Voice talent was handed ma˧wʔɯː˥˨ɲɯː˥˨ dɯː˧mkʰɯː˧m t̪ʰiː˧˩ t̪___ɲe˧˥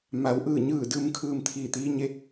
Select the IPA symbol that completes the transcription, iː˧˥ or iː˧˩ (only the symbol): iː˧˥